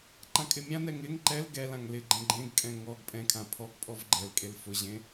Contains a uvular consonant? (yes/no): no